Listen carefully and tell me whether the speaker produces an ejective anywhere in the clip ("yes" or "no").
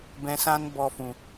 no